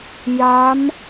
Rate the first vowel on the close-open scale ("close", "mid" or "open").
open